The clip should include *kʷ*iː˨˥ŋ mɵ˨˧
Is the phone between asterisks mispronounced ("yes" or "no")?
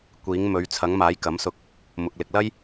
no